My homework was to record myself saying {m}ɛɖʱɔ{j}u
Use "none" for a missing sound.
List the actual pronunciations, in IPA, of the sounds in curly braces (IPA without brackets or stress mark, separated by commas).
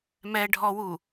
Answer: m, w